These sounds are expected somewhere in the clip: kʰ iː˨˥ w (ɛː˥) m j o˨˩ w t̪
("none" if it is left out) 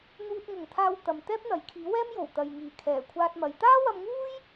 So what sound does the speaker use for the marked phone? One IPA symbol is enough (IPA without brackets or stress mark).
ɛː˥